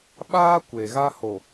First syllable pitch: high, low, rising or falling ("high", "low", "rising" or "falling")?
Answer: high